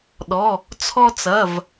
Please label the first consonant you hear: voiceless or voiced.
voiced